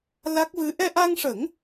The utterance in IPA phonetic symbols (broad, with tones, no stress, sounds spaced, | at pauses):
l a˦˥ k̚ v ɨ˧˥ ʔ ɛ˧ ʔ a˧ ŋ ʂ ə˨˩˦ ŋ